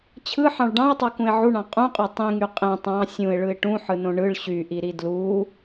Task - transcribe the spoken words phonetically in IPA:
t͡ɕʰɯħɑ̃ɭ ɖɑ̃ɪ̯tˤokũɪ̯ ʕuɳɑ̃ qʼũqʼø tˤĩŋy qʼẽ tˤɑ̃ sʲũɪ̯ɭɯɪ̯ ʈũħɯnõ ɳɯɭ ɕyʔiɾi dlu

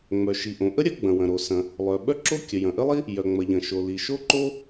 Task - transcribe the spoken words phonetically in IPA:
ŋ͡mœ˩ ʃi˩ʔõ˩ ʔə˥ ɾʲɐ˥ɡ͡bɐ̃˩ wɐ̃˩ɾo˩sɐ̃˩ | lˠœ˩ɓœ˥ǁo˥ kʲə˩jɐ̃˩ʔə˥lˠi˥ | jœ˩ŋ͡mɐ˩ʎɐ̃˩ʃo˩ li˩ʃo˥ǃo˥

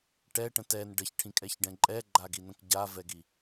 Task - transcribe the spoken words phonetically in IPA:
ʈɛʈə̃ tɛn ɖəçʈʰĩkʼɛçɖɛ̃ ǃʼɛɡ͡ǃaɡinə̃k ɟavɛɡi

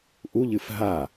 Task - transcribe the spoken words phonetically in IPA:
ʔuʎɨf ɦa

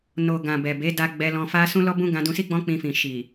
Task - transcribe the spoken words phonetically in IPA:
no˨ ɡã˨ bɛ˨be˨˦da˧ ɡ͡bɛ˧lɔ̃˧fa˦ sũ˦lɔ˦bũ˦ ɡã˧dũ˧si˦ ɡ͡bɔ̃˦k͡pĩ˧fĩ˨ ʃi˨

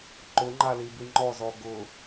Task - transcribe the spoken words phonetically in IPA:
ǃʊŋ͡ǃalibi ŋ͡ǃɔzɔ ɡʊ

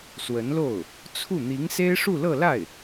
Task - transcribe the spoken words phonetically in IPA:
swə˧˥nlo˥˩ʊ̯ | t͡sʰu˥˩ n̪i˧˥ŋse˥ɪ̯ ʂu˥˧lɤ˥˧la˥˩ɪ̯

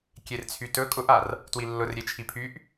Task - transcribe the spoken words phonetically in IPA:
kʲert͡sʰytɵ kʼʊʔar | twilːʊr ɾʲet͡ʃʰipʰyʔ

